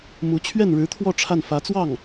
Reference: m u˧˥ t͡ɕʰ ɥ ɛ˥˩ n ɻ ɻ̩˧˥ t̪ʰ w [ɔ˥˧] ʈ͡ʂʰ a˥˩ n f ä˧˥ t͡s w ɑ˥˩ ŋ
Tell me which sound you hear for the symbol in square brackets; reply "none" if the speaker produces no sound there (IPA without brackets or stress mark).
ɔ˥˧